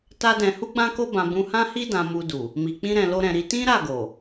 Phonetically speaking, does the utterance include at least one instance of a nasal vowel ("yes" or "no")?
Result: yes